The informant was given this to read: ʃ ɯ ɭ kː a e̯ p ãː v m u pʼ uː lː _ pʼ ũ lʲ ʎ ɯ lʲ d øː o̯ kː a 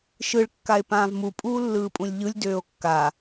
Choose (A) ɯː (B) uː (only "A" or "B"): A